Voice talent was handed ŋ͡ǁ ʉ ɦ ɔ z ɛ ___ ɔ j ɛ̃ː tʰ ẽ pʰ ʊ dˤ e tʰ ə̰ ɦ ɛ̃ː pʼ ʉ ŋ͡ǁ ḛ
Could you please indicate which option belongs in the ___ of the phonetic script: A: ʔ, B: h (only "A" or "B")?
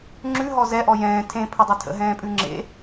A